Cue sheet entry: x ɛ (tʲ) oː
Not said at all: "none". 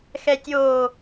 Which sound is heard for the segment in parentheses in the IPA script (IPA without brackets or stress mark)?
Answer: tʲ